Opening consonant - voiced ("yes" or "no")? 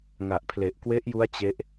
yes